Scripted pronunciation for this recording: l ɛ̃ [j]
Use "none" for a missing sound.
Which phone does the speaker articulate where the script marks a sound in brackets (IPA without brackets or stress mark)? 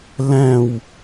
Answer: w